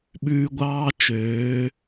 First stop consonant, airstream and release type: implosive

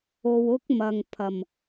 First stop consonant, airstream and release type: plain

